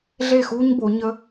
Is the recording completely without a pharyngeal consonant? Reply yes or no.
yes